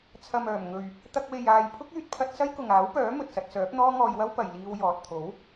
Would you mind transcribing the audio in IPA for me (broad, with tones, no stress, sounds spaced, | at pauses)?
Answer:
t͡sʰ ɐ˨ m œː˨˩ m ŋ ɵ˨ ɥ | t̪ ɐ˧ k̚ w e˨ j aː˨ j pʰ ʊ˥ k̚ yː˧ t̚ pʰ ɐ˧ t̚ s ɐ˥ j k ʊ˨ ŋ aː˨˥ w p œː˨˥ m ɵ˨ t̚ s ɐ˧ t̚ s œː˨˥ p̚ n̪ ɔː˥ ŋ ɔː˧ j w ɐ˥ w p ɐ˨ j l iː˧ w j ɔː˨ t̚ t̪ʰ o˨˥ w